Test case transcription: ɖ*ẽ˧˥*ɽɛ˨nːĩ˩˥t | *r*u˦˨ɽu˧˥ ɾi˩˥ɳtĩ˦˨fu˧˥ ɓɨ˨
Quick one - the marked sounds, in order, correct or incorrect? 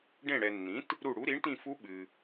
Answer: incorrect: ẽ˦˨, incorrect: ɾ

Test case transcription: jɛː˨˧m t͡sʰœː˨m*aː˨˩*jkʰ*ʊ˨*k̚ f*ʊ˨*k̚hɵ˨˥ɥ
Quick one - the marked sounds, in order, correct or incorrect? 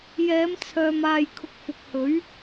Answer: incorrect: aː˨, correct, correct

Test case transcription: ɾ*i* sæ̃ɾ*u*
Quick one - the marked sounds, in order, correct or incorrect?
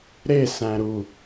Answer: incorrect: e, correct

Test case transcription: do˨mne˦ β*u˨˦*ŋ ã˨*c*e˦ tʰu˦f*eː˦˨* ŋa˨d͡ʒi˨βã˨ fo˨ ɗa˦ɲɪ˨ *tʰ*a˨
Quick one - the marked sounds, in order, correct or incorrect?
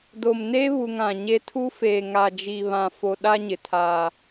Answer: incorrect: u˨, incorrect: ɲ, incorrect: eː˨, correct

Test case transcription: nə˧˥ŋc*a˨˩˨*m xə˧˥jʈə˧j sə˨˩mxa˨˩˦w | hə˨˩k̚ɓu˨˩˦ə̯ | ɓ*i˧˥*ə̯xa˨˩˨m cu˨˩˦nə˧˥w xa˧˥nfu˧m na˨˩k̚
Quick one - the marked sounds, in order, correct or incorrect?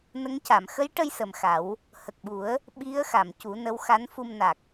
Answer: correct, correct

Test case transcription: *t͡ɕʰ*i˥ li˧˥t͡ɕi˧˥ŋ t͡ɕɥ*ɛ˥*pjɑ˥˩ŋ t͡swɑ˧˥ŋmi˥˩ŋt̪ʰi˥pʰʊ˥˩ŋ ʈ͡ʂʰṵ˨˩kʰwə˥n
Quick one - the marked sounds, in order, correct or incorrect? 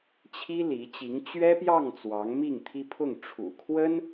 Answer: correct, correct

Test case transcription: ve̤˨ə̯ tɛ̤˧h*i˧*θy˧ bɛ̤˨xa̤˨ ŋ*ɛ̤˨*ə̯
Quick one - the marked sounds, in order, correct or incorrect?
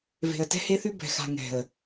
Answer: incorrect: e˧, correct

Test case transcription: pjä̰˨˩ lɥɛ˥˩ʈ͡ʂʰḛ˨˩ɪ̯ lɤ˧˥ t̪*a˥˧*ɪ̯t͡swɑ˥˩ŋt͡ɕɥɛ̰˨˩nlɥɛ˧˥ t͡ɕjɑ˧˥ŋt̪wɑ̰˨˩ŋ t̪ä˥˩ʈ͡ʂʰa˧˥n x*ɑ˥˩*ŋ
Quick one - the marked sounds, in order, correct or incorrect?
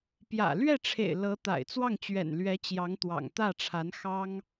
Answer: incorrect: a̰˨˩, incorrect: ɑ˥

